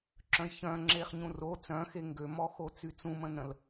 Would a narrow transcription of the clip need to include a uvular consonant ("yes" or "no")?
yes